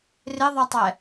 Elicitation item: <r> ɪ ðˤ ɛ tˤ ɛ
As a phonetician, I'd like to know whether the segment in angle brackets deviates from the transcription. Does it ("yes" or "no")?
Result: no